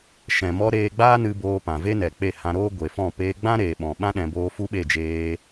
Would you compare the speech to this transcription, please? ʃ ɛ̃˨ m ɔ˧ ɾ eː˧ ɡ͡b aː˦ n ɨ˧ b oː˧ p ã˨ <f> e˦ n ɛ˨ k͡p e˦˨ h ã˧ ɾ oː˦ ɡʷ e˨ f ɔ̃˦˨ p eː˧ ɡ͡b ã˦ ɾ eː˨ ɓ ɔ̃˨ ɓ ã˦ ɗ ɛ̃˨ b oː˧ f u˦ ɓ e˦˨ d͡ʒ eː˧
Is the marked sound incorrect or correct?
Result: incorrect